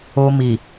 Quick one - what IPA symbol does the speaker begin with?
o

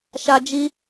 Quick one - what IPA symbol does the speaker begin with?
ʃ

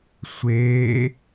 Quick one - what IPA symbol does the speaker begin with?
sʷ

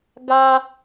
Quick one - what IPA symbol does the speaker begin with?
ɡ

